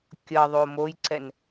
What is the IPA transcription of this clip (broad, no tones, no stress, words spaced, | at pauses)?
kʲʌðˤo mojǀɛn